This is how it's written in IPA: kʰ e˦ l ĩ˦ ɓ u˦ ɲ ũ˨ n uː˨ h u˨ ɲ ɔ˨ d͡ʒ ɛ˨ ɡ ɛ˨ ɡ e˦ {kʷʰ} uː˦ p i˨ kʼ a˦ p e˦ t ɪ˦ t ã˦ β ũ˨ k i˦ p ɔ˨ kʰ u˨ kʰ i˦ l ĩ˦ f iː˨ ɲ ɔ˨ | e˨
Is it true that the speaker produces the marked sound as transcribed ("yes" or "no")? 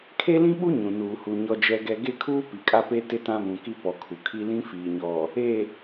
no